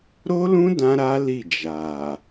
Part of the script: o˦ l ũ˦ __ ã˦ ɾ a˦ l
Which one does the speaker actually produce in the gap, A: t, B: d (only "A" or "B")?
B